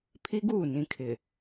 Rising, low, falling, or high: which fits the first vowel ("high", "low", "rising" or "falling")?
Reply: high